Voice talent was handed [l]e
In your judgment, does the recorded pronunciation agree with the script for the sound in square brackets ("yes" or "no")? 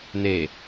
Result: no